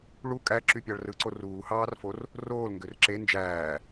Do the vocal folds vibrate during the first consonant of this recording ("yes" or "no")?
yes